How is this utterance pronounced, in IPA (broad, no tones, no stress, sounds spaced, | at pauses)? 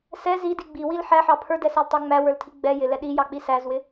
s ɛ z i d i ɡ͡b i w i l ħ æ ħ ɑ pʰ ə˞ d ɛ s æ l tˤ ə˞ ŋ͡m æ w ə˞ l tʰ i ɡ͡b ɛ j ɪ l ɛ ɗ i j ɑ k͡p i s æ z w ɪ